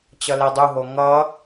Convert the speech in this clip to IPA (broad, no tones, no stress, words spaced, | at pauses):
t͡ɕʌledˤuɦo ŋʌ